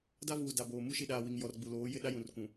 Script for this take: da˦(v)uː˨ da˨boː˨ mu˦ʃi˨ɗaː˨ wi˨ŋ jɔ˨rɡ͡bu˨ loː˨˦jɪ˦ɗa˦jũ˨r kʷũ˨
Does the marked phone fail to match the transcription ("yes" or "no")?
no